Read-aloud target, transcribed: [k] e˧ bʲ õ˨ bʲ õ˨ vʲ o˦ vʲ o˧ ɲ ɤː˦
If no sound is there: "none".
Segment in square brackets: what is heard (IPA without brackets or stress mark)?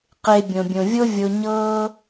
q